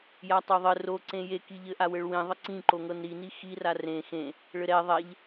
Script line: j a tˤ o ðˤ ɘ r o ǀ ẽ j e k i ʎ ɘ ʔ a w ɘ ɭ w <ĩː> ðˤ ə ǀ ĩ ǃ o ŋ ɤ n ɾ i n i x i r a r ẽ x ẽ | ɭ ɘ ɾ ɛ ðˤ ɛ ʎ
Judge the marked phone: incorrect: ĩ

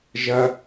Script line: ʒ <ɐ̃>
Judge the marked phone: incorrect: ɐ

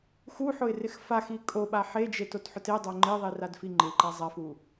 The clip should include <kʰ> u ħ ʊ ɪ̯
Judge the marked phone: incorrect: x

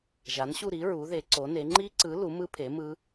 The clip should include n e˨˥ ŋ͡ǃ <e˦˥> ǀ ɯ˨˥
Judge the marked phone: incorrect: i˦˥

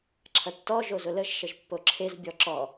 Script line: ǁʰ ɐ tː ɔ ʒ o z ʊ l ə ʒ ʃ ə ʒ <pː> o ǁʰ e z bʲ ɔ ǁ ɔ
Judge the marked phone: correct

